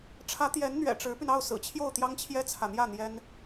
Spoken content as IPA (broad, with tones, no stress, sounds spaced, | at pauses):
ʈ͡ʂʰ ä˧˥ t̪ j ɛ˧˥ n n̪ ɥ ɛ̰˨˩ ʈ͡ʂ ɻ̩˧˥ p y˧ n ɑ˥˩ ʊ̯ s ɹ̩˨˩ t͡ɕʰ j o˥˩ ʊ̯ t̪ j ɑ˥ ŋ t͡ɕʰ j ɛ˥ t͡sʰ ä˨ n̪ j ä˥˩ n̪ j ɛ˥ n